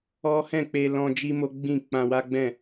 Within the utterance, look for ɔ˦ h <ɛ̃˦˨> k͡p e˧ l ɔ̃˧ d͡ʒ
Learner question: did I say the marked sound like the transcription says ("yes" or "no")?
yes